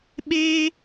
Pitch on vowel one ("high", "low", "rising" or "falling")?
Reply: high